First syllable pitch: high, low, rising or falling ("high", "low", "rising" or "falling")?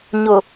low